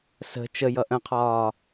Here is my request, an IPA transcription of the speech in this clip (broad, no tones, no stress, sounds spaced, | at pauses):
s ə̤ t͡ʃ ə j ʌ ʔ ə̃ qʰ ɒː